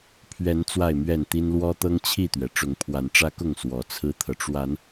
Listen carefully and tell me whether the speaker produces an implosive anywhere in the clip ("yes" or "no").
no